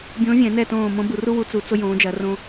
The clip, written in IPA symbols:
bʲõː˧˥vʲɛ̃˨˩˦nɛ˦˨tõː˦˨ mõ˧˥bu˨˩˦ru˥wu˧˥ t͡su˨˩˦ t͡so˥jõː˧˥d͡ʒɐ˧˥rõ˥

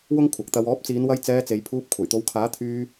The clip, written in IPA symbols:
wʊ˥ŋkʷʰɐ˨˥k̚t̪ɐ˧w ɔː˨˥p̚t͡siː˨˧nwɐ˧j t͡sɛː˧t͡se˨˧jpʰuː˧p̚ kʷʰɐ˨˩jt̪o˨˧wkʰaː˨˥ t̪ʰyː˧

